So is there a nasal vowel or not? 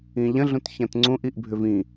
yes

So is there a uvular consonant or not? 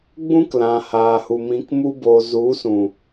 no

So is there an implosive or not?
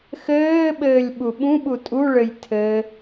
yes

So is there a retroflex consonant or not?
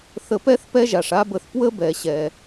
yes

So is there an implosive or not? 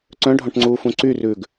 no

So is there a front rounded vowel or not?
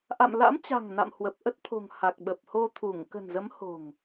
no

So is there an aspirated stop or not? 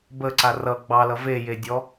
no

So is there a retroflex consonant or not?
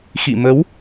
no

